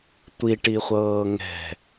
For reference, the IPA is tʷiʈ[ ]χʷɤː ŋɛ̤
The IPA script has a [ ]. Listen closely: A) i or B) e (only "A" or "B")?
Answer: A